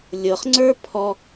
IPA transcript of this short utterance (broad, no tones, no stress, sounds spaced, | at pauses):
lʲ ɤ χ ŋ͡ǀ ə˞ pʰ ɔ